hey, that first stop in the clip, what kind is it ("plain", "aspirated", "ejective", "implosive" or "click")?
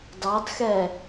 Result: plain